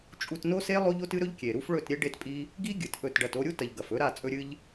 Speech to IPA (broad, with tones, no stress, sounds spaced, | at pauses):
t͡ʃʼ u˧ t n o˦ s e˦ lˠ o˦ ʎ o˦ t ɨ˦ ɾ ɵ˦ ʎ kʲ e˨ ɾ u˦ f ɭ ɵ˦˨ t ɾʲ e˦ ɖ e˦ t pʼ i˦ | ɡ i˦ ɡʲ ɨ˨ t ʔ ɵ˦˨ t ɖ ɐ˦˨ t o˧ ɾʲ u˦ t ɐ˨ ʎ ɡ ɐ˨ f ɵ˦ ɾ a˦˨ t͡sʼ ɵ˦ ɾʲ ɨ˦ ʎ